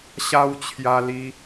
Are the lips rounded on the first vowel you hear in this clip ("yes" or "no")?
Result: no